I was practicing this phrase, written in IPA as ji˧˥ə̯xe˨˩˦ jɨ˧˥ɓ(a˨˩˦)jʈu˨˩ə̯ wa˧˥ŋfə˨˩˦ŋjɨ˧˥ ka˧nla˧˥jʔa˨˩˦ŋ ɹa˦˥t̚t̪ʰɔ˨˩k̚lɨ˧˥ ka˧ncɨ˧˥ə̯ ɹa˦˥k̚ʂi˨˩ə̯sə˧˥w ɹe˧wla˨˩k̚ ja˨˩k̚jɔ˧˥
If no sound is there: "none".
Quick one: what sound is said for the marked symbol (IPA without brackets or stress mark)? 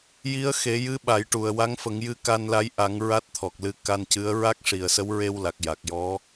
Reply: a˨˩˦